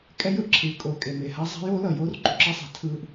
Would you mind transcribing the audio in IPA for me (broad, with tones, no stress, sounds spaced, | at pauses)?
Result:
kʼ ɛ˦ j ɯ˦ ʔ ǁʰ ɯː˨˦ kʼ oː˨ kʼ e˨ m e˨ h a˦ zˤ a̤˦ j oː˦ l ʌ˨ j oː˦ r ǃ ṳ˨ ǁ ʌ˦ sˤ a̤˨ tʰ ɯː˦ ʔ